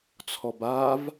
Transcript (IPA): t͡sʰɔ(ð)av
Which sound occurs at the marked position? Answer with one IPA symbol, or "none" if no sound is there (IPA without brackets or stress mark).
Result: b